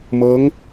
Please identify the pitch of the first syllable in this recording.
rising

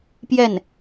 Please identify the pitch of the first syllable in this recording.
falling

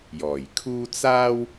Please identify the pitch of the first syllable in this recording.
low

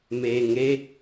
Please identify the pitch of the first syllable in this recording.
low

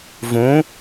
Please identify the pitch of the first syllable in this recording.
rising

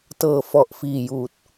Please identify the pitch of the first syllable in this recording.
low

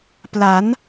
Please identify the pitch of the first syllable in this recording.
rising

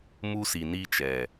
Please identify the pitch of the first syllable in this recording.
high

